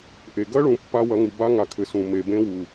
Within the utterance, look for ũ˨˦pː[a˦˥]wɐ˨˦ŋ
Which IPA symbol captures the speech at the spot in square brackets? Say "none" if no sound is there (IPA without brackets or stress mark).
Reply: a˦˥